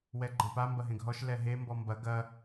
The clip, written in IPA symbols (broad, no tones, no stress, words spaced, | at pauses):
wɛɡ͡ǃɐ̃pa mbɐɦẽɡɦɔʃ lɛɦe mbɔmbɐ ɡɐ